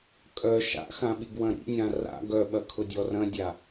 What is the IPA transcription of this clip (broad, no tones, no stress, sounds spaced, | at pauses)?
kʼ œ ʃ a̰ x ã ɓ i ɡ w ɐ̃ ɾ ḭ nʲ ã r a̰ ɡ œ ɓ ɐ kʰ ʊ dʲ ɔ r ɐ̃ dʲ a